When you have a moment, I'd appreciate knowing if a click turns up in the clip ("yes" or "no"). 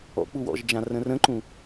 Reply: yes